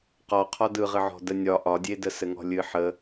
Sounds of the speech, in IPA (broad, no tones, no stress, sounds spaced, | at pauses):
q ɔ qʰ ɒ d ɯ ʁ ɨ ʕ ɔ̤ d ə nʲ ɒ ʔ ɒ dʲ e d ə s ɘ ŋ ɔ̤ lʲ ɨ ħ ə